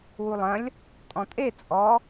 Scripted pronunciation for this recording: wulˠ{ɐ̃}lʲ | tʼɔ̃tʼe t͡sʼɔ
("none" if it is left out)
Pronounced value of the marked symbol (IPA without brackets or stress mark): ɐ̃